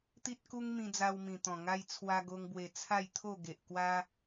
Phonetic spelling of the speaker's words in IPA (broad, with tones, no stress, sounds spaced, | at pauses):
t̪ i˦ t̚ k u˦ ŋ m ĩ˧ d͡z a˧ w m ĩ˨˩ t̪ ɔ̃˨˩ ŋ a˦ j t͡sʰ w a˧ ɡ o˧ ŋ b w e˨˩ t͡sʰ a˥˧ j t̪ʰ o˥˧ ɡ e˨ ʔ k w a˦